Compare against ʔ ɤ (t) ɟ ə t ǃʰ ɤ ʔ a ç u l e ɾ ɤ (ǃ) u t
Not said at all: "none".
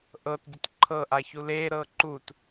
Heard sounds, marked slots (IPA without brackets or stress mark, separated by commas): t, ǃ